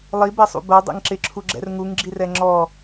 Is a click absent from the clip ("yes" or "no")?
no